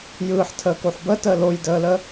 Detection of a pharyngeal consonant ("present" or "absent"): present